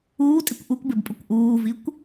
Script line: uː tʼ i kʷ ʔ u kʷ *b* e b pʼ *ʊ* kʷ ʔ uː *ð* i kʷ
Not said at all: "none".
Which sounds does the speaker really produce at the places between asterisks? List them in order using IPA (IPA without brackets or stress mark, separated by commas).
b, ʊ, v